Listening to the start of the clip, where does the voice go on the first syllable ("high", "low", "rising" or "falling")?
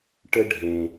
high